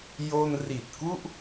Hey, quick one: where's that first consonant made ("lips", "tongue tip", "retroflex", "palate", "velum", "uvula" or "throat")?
palate